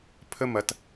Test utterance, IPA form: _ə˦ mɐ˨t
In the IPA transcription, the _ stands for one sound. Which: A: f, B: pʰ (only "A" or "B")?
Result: B